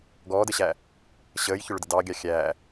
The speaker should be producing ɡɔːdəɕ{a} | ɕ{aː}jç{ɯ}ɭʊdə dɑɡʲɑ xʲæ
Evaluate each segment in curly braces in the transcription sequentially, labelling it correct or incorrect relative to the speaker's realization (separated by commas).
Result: incorrect, incorrect, incorrect